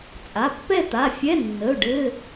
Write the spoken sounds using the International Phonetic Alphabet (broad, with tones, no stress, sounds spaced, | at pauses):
t͡sʼ a˩˧˩ pː ɛ˥˧ t̪ a˩˧˩ fʲ ɛ˧˥˧ nː ə˩˧˩ ʊ̯ ɖ ɘ˧˥˧